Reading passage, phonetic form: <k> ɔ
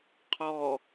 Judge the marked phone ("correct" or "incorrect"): incorrect